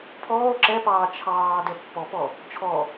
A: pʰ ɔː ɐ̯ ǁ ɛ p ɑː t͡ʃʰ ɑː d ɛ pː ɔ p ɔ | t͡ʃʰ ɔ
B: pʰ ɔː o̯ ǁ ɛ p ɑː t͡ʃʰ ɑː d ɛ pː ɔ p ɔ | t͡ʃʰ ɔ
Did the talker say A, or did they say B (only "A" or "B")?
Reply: B